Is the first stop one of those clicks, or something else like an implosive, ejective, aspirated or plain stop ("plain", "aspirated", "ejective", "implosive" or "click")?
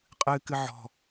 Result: ejective